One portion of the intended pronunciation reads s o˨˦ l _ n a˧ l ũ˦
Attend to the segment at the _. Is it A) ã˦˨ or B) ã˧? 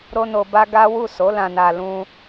B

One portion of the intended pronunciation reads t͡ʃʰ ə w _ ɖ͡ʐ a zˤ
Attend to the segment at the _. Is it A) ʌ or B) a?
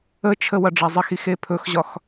A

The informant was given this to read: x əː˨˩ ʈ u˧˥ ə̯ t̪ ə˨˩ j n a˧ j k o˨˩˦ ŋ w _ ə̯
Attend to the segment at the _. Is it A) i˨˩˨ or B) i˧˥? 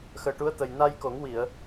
A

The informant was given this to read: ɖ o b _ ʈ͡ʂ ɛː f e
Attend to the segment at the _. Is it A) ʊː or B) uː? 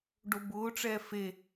A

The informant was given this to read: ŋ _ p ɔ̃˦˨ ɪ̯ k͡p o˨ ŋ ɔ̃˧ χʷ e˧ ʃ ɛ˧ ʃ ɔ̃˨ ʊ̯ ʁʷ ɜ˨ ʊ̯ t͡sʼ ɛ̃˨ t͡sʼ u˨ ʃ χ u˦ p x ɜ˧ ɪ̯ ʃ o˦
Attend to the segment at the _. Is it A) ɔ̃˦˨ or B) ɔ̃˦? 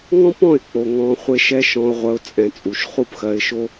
B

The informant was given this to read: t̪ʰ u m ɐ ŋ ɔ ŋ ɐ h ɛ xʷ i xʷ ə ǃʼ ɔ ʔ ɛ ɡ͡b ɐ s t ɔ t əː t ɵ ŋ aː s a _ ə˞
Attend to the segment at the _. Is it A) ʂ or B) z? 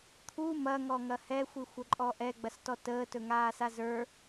B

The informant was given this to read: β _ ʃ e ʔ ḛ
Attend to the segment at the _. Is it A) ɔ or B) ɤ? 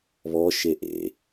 A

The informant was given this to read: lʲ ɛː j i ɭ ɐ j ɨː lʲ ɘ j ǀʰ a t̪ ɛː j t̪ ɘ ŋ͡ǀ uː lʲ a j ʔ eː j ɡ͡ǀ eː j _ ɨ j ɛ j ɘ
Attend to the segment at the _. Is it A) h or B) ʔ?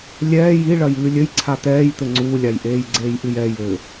B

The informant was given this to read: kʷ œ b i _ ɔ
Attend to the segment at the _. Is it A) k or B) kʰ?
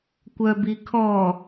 B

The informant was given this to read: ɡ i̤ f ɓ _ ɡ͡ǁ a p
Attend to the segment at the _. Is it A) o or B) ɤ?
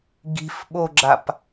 A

